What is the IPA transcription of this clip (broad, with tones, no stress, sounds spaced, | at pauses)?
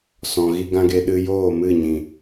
s ɔ̃˨ ɣ i˧ ɡ ã˦ ɡ e˧ ɗ ɨ˧ j oː˦˨ m ɨ˦˨ ɲ ĩ˨